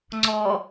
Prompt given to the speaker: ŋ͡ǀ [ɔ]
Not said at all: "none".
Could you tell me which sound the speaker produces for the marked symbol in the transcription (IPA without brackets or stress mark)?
ɔ